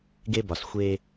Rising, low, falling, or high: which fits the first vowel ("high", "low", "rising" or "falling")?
high